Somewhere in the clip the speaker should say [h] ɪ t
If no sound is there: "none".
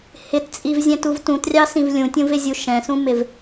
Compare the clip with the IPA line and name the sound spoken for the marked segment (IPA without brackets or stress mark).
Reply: h